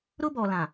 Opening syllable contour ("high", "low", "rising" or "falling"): high